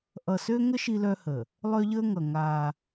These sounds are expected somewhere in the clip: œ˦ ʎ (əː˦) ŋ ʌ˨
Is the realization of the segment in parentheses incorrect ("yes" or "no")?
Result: no